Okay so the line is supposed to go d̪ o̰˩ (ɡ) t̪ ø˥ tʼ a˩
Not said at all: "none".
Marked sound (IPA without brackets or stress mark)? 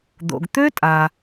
ɡ